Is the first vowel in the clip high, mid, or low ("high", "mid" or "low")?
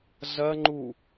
low